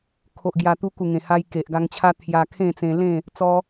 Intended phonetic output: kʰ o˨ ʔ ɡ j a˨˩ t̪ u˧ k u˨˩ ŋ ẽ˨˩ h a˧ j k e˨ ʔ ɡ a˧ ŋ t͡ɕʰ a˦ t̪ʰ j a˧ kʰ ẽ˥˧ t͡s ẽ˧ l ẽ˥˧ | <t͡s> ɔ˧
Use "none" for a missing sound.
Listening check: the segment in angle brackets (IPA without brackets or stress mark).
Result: t͡s